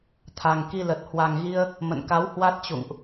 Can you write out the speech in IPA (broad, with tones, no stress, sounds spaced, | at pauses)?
t̪ʰ a˨˩ ŋ k i˧ l ə˨˩ t̚ h w a˨˩ ŋ ɣ i˧ ə̯ | m ə̰˧˨ n k a˨˦ w h w a˦˥ t̚ t͡ɕ ṵ˧˨ ŋ ʔ